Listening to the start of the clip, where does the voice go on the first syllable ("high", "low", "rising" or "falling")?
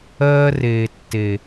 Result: high